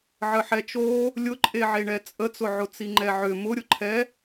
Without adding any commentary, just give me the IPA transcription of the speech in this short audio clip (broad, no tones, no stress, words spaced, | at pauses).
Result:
ʕəħɛt͡ʃo | lʲʊǃʼeʕeɳɛ t͡sʼət͡sʊʕʊ t͡siŋ͡ǃɛʕʏ mʊɾʲʊǃʰɛ